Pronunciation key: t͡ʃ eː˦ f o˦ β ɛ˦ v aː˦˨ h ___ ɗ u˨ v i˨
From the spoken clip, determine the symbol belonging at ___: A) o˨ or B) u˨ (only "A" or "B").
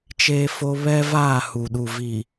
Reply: B